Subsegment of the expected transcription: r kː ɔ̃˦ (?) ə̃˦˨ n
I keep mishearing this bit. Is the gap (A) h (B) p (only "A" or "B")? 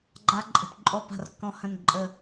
A